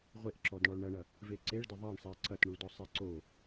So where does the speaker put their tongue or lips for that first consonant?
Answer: uvula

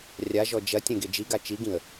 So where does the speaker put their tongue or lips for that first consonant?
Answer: tongue tip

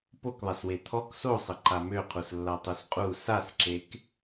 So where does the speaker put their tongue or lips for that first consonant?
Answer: lips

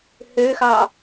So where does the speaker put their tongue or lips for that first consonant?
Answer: throat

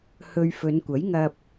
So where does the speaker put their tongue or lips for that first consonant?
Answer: throat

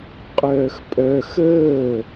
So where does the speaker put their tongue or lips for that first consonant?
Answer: uvula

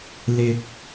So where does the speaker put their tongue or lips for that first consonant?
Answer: tongue tip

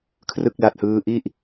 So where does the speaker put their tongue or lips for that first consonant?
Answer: velum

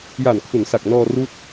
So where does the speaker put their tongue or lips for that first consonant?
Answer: palate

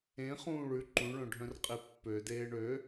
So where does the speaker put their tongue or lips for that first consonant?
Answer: uvula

